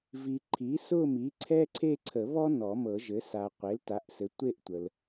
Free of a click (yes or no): no